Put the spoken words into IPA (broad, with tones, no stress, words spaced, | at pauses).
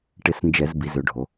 ʈɪ˧˩˧snd͡ʒɛ˧˩˧z bi˩˧zø˩˧ɖʱo˩˧